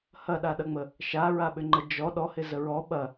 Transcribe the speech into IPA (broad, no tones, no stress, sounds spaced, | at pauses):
h ɐ ɗ a ɗ ɐ ŋ͡m ə | ʃ a ɹ a ɓ ʏ ŋ͡ǃ ə d͡ʒ ɔ ɗ ɔ h ɪ z ə ɹ ɔ ɓ ɐ